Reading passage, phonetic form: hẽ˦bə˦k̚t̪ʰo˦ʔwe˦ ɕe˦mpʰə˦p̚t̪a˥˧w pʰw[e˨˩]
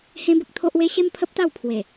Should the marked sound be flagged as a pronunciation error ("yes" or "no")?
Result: no